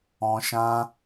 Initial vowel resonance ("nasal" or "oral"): nasal